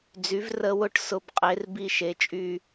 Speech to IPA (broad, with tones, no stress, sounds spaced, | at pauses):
d͡z y˩˥ v r ə˦˨ w ʊ˦˨ ʈ s ʊ˦˨ b qʼ e˩˥ r b i˦˨ ʃ e˩˥ t͡ʃʼ y˦˨